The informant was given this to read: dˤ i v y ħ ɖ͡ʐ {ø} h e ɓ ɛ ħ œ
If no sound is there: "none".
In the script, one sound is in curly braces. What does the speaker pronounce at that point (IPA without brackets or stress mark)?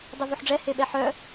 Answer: ɛ